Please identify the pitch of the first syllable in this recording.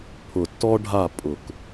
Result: low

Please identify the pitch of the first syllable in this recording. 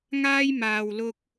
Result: high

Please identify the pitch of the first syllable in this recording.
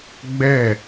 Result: falling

